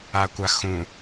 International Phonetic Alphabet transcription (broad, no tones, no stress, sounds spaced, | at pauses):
a kʷ a x ũ